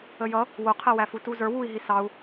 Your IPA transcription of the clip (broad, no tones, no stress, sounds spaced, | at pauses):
ə j ʌ | w ʊ qʰ ɛ w æ f u t u z ə˞ w u i̯ ɦ i s ɑ u̯